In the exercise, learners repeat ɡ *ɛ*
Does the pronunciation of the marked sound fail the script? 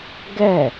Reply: no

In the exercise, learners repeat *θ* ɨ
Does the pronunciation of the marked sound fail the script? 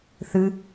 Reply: no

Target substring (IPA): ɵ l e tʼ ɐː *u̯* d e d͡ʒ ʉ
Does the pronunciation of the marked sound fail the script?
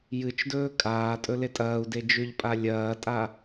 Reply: no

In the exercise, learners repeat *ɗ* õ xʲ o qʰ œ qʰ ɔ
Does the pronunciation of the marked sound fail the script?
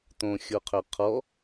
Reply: yes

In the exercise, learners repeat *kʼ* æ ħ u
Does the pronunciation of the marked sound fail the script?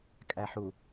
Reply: no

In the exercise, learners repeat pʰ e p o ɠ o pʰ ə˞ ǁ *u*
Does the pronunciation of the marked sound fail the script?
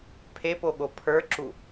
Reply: no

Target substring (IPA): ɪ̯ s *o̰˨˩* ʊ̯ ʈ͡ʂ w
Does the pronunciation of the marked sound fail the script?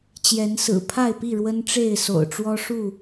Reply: no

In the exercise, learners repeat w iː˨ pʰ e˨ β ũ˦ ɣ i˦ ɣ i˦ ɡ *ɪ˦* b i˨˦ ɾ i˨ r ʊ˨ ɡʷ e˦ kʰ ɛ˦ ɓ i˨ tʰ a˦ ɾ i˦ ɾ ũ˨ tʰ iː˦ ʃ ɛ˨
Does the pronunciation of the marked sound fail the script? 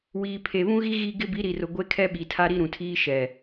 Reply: no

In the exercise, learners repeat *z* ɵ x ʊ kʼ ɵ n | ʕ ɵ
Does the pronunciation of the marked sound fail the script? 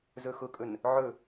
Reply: no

